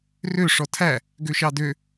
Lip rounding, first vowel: rounded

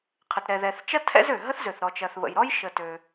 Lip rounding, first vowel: unrounded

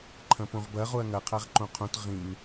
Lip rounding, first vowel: unrounded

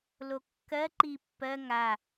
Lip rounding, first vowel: rounded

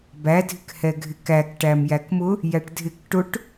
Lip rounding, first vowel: unrounded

